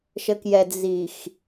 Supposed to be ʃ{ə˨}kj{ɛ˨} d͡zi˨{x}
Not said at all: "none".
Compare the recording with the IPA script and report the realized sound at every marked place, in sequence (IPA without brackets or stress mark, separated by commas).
ə˨, ɛ˨, x